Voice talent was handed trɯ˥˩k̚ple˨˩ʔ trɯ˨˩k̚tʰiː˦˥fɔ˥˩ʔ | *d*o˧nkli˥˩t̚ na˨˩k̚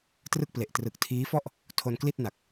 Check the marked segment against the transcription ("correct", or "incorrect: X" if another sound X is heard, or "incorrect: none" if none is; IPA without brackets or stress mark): incorrect: tʰ